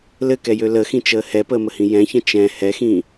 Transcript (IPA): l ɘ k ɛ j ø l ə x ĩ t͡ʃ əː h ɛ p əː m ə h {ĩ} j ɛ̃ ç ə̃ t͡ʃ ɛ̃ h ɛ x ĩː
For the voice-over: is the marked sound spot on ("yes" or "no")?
yes